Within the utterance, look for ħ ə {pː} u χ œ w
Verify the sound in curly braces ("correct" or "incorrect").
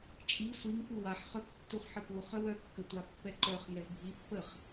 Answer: incorrect